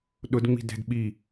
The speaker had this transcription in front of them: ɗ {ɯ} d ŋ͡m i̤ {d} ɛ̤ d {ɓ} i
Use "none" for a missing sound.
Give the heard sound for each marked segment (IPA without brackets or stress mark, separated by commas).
ʊ, d, ɓ